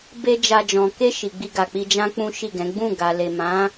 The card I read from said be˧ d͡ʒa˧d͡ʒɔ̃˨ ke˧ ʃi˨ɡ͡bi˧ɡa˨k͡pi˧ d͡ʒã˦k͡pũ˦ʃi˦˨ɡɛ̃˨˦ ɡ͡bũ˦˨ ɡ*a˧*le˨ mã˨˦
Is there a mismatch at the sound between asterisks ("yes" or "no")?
yes